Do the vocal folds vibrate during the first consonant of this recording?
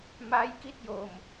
yes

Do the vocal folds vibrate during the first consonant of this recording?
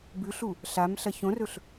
yes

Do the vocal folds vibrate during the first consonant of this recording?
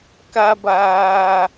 no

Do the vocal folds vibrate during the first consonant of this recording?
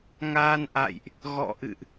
yes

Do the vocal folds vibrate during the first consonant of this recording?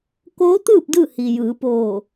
no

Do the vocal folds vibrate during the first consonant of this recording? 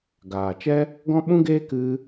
yes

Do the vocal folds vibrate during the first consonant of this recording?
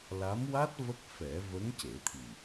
yes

